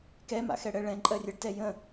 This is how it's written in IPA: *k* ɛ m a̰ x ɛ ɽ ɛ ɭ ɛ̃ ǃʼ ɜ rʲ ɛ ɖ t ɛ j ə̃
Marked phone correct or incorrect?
correct